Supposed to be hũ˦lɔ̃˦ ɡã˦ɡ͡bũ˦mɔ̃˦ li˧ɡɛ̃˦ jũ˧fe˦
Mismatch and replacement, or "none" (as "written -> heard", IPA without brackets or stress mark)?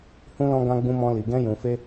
none